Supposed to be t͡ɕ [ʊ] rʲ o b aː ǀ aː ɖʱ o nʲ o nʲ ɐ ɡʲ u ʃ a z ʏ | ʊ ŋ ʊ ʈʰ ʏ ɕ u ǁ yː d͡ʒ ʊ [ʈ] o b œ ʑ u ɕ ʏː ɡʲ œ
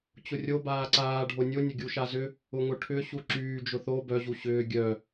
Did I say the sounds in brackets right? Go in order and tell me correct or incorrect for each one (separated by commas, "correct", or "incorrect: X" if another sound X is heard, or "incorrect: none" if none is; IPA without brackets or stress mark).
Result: correct, incorrect: θ